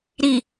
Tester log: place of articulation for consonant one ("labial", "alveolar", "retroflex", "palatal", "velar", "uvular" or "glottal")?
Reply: alveolar